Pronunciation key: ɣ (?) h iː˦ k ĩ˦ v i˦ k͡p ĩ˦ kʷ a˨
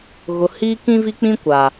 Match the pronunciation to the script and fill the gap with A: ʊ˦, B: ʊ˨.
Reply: B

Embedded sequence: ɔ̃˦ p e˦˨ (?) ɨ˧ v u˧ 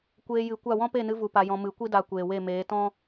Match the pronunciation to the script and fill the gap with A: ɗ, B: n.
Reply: B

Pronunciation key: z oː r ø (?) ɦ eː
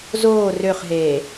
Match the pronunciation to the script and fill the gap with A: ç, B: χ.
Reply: B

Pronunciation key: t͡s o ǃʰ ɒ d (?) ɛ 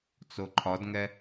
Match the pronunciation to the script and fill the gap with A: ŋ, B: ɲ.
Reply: A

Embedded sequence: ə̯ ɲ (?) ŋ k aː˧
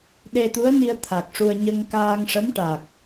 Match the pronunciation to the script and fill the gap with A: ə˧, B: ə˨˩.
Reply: A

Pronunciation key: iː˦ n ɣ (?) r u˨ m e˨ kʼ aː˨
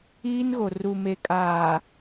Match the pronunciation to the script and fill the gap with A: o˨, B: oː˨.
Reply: A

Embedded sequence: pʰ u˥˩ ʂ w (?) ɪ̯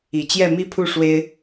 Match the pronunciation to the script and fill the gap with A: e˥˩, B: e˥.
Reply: B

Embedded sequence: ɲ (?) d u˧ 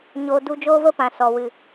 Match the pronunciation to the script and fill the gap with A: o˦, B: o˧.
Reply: B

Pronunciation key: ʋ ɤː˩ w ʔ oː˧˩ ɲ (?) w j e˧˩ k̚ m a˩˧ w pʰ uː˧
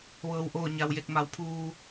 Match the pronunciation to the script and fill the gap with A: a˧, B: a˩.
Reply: B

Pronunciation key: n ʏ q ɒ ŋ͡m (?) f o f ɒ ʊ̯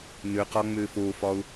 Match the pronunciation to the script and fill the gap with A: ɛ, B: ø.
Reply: B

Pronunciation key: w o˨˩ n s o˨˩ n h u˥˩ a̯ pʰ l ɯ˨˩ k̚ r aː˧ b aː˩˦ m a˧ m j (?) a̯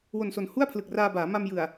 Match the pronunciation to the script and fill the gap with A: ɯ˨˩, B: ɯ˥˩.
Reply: A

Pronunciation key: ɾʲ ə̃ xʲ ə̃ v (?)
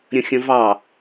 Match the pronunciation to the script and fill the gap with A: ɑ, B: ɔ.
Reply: A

